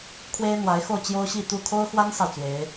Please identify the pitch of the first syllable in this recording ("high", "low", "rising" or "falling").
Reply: high